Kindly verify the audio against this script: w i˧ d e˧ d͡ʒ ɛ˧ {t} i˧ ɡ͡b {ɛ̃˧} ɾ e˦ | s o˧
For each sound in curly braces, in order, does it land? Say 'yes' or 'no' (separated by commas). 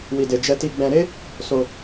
yes, yes